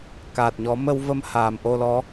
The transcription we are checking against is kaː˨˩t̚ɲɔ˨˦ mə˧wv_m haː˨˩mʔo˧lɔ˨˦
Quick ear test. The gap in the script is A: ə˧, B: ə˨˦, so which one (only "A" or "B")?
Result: A